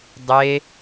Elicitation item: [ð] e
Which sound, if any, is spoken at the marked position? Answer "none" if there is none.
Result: dˤ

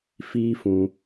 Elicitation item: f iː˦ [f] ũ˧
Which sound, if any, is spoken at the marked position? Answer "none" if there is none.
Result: f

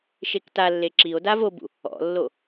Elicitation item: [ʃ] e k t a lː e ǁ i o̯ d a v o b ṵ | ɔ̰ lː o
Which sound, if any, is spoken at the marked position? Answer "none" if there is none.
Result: ʃ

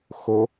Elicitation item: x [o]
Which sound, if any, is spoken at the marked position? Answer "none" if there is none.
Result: o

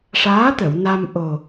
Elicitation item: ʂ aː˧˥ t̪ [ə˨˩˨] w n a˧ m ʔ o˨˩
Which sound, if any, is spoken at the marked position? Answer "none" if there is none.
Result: ə˨˩˨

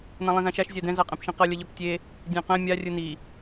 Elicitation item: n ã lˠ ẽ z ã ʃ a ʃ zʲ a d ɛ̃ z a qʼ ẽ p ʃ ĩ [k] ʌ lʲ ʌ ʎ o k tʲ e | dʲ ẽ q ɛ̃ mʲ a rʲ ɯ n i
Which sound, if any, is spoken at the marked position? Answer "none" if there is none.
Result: q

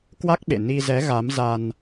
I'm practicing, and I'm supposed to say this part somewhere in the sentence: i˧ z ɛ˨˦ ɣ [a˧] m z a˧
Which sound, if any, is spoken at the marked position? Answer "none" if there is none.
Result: a˨˦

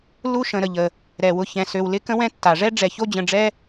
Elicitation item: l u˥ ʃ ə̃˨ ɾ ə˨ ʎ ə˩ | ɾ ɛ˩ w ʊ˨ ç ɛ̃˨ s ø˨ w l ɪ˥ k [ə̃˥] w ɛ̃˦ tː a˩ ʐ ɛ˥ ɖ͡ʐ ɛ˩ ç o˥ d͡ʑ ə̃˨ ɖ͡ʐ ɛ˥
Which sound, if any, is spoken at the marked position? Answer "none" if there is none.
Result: ə̃˥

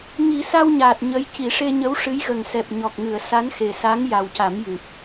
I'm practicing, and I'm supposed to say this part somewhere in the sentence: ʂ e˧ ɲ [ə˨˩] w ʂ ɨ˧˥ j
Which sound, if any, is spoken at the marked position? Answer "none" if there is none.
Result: ə˧˥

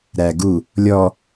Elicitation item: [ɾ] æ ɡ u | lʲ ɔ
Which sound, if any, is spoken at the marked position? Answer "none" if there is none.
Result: ɾ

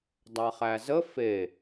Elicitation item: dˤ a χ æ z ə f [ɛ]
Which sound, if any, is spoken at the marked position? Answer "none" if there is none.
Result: e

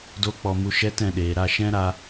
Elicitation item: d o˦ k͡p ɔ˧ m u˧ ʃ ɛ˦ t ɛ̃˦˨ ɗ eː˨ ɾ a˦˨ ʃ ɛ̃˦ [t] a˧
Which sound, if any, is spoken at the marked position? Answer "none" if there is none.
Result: ɾ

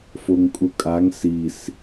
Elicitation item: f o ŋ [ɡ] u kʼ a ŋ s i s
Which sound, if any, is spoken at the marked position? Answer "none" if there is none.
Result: kʼ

